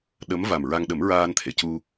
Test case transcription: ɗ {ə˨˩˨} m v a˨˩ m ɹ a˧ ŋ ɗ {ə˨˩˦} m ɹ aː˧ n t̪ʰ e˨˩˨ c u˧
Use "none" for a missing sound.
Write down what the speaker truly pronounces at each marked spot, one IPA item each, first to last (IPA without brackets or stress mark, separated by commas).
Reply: ə˧˥, ə˨˩˦